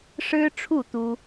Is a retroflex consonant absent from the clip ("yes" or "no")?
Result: no